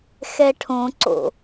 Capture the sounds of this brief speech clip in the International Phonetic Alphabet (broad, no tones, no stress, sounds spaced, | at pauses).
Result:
x ɛ ʈʰ õ ǀ o̰